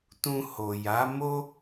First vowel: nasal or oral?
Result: nasal